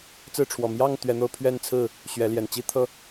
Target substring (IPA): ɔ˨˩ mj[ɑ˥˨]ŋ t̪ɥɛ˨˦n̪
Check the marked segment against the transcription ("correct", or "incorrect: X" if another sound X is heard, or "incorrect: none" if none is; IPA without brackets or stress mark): correct